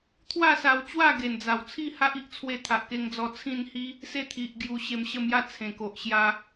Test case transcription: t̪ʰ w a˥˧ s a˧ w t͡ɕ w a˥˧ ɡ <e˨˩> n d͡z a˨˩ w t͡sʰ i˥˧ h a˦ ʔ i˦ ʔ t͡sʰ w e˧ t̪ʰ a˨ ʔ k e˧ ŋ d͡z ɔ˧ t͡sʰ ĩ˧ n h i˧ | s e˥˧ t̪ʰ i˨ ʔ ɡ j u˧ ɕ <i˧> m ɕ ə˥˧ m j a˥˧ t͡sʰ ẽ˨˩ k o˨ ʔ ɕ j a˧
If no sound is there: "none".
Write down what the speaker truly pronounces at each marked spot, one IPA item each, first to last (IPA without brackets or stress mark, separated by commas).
e˨˩, e˧